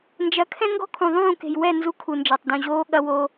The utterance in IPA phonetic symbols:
n d͡ʒ ɐ˨˦ kʰ ɛ̃˦ ŋ ɡ ɔ̤˦ kʰ ũ˨ ðˤ ũː˦˨ k e̤˨ j w ɛ˦˨ n z u˦ kʰ u˨ n d͡ʒ a˨ tˤ d ũ˨ ʑ oː˦ ɠ ɐ˦ w o˦

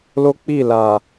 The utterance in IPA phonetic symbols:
l o˦ k͡p i˦˨ l a˨

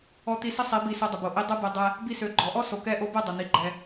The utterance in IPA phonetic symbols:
ɔ˧ t̪ i˧ s ə˦ sˤ i˨˦ b i˧ s o˧ dˤ ə˨ b o˨ ʔ i˧ dˤ ɛ˦ b ɛ˧ dˤ ɛ˧ | b i˧ s ø˨ ɡ͡ǃ ɔ˨ ʔ ɔ˦ s o˨ k ɛ˧ ʔ o˧ b ɛ˦˨ dˤ ɛ˨ n̪ i˨˦ ɡ͡ǃ ɛ˧

